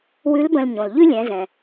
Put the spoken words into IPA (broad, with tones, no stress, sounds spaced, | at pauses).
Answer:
w ʉ˧˥ l b ə̃˧ l ɲ õ˩ l ʎ ʉ˥ lʲ ɛ̃˩˧ z ɛ̃˩